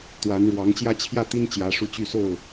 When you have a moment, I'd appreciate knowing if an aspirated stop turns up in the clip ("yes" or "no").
yes